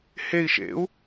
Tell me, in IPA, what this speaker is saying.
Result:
h e i̯ ʃ ḛ u̯

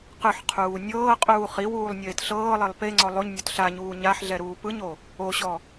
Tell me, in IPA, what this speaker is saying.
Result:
q ɯ ħ qʰ uː nʲ ɤː qʼ uː χ i w uː lˠ nʲ eː t ɬ ɤː lˠ e lˠ p e ŋ͡ǀ ɔ lˠ o ɲ nʲ ɔ t ɬ a ɲ uː ɲ a ħ ɮ ɛ ɾ uː p ɯ ɲ o | o ɕ ɔ

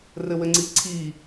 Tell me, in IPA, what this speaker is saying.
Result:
r ɘ w ɘ ŋ͡ǀ i ǀʰ i

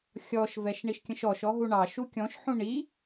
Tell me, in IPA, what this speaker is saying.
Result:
xʲ ɔ ʃ v ɛ ʃ ɳ i ʃ kʲ ə̃ ʃ ɔ ʃ ɔ ɦ u ɳ ɑ ʃ u kʲ ɔ̃ ʃ ħ ũ ɳ i

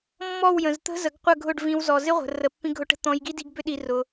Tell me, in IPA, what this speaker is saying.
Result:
mː ɔ˦˨ w j ə̃˨ z t̪ ə̤˦ z ə˨˦ ɡ qʷ ə˦˨ ɡʱ ʊ˦˨ ɖ v ĩ˧ w z ɔ˨ z ɪ˦ ʁʷ ə̤˨ r ə˨ pː ĩ˧ ɡʱ ʊ˧ ʈ ə̤˧ t̪ ɔ̃˧ j ɡ i˦ d i˧ ɡ b ʏ˦ ɗ i˧ r ʊ˧

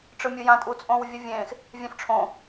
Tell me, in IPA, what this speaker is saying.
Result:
ʈ͡ʂ ɯ mʲ ɯ j ã tʼ u t͡sʼ õ w vʲ ʌ vʲ ẽ x | vʲ ɛ̃ f ʈ͡ʂʰ õ

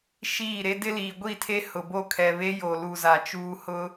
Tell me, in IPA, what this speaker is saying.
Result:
ʃ iː˦˨ ɾ e˦ d ɪ˦ l iː˨ ɡʷ i˦˨ tʰ e˦ h ʊ˨ b o˦ kʰ ɛ˨ β e˦ j o˨ l u˨ z a˨ t͡ʃ uː˦ h ʊ˦

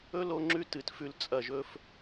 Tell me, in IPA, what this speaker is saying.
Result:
ɵ˦ l o˦ ŋ͡ǁ ʉ˦ t ɨ˨ t f ʉ˧ l t͡sʼ ɐ˨ ʒ ɵ˧ f

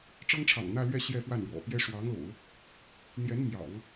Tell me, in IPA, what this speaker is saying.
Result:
ʈ͡ʂ ɤ˥ ŋ ʈ͡ʂʰ ɑ̰˨˩ ŋ n̪ ä˥˧ l ɥ ɛ˥˧ ɕ j ɛ˥˧ f w a˥˩ n ɻ w ɔ̰˨˩ p j ɛ˥ ʂ w ɑ˧˥ ŋ l o̰˨˩˦ ʊ̯ | n̪ j ɛ˧˥ n m j ɑ̰˨˩˦ ŋ

